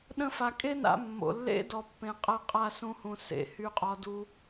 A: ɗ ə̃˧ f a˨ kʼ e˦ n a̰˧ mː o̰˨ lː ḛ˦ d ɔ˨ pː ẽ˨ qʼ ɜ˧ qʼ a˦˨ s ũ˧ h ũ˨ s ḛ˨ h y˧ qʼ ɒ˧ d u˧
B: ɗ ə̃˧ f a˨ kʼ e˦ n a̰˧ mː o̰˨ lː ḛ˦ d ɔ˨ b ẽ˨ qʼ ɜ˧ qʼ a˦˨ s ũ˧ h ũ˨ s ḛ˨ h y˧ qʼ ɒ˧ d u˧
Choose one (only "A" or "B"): A